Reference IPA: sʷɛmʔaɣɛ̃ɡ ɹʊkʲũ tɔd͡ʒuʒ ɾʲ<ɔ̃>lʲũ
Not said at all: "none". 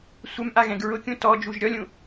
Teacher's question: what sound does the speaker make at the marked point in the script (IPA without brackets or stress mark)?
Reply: ɔ